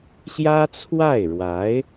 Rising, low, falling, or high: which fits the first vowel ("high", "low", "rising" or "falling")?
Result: high